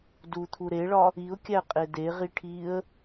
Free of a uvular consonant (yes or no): no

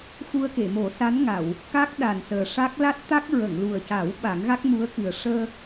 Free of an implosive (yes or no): no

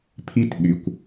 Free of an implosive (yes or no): no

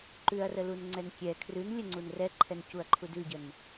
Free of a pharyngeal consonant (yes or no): yes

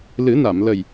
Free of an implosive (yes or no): yes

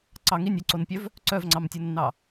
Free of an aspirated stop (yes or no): yes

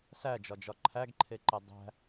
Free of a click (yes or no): no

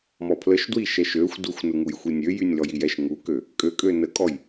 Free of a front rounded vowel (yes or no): no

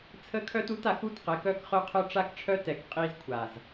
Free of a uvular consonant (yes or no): no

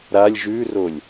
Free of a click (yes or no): yes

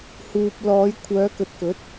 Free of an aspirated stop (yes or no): no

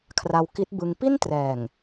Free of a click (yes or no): yes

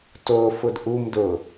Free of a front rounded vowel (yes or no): yes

